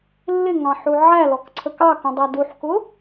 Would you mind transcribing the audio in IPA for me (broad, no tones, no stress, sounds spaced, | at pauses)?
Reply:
lː ɪ ŋ ɑ̃ ħ u ʕ æ l ɔ k ǀʰ ə k ɑ k ũ dˤ æ d u ħ k ʊ